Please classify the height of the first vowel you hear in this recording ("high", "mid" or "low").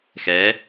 mid